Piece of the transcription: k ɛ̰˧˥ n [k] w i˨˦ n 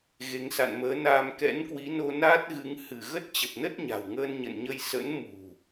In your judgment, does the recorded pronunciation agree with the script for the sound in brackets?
yes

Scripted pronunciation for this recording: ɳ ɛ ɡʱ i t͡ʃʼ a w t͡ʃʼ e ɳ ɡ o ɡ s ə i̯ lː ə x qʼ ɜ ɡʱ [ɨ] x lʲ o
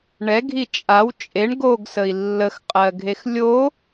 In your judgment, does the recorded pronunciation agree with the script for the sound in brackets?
no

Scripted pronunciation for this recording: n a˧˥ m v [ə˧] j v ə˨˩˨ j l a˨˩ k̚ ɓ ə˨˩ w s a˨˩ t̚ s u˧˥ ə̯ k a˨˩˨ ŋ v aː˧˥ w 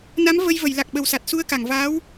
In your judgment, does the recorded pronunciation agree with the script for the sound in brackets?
yes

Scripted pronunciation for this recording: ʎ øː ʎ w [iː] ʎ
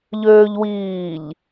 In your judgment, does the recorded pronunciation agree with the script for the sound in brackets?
yes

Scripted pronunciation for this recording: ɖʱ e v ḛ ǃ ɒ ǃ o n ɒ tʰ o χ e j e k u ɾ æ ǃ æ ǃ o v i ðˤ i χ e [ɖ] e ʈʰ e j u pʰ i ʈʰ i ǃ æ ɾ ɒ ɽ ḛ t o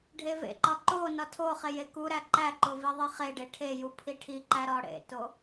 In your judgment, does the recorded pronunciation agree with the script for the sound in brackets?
yes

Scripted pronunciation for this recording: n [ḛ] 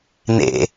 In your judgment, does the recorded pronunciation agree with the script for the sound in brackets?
yes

